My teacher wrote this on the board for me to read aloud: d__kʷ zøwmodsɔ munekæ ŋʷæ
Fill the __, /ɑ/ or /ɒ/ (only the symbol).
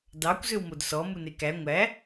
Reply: ɑ